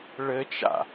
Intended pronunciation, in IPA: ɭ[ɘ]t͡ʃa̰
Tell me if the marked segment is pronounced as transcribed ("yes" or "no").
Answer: yes